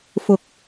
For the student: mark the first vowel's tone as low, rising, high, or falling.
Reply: low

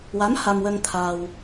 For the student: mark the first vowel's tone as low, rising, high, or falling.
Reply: rising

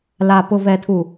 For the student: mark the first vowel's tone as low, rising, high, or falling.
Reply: low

